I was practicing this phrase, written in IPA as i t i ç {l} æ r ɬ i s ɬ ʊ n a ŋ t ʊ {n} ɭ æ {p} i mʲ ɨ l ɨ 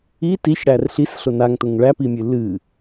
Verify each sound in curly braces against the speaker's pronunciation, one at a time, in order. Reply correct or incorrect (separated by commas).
incorrect, incorrect, correct